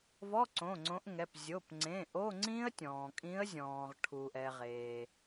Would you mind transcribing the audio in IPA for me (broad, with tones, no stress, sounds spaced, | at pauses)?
v ɔ˧˥˧ ǀ õ˩˧˩ ŋ͡ǀ õ˨˦ ʔ ŋ ɛ˩˧˩ p zʲ o˩˧˩ p ŋ͡ǀ ẽ˩˧˩ ʔ o˧˥˧ ŋ͡ǀ ĩ˦˥ ə̯ tʲ ɔ̃ː˩ kʼ ĩ˨˦ ə̯ zʲ ɔ̃ː˩ ʁ ʈʰ u˩ ʔ ɛ˩ ʁ eː˩